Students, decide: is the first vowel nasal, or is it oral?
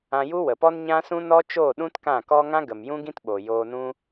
nasal